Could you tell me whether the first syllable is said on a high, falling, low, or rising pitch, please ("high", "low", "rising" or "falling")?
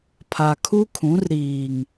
low